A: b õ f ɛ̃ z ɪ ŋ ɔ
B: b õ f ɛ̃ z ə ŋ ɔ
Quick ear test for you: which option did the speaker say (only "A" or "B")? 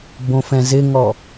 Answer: A